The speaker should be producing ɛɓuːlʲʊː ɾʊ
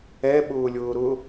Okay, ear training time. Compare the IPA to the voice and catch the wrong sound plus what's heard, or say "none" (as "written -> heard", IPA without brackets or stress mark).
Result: uː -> ʊː